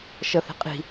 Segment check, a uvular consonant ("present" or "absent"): present